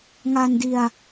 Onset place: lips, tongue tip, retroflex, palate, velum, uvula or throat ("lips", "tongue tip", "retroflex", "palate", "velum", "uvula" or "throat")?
velum